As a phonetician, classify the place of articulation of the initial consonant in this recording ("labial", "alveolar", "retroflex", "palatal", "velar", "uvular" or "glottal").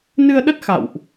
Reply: alveolar